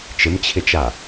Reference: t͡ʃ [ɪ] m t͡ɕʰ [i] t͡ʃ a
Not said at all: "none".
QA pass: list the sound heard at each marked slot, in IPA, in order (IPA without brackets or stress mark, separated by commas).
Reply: ɪ, ɪ